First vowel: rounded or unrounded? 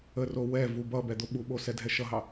unrounded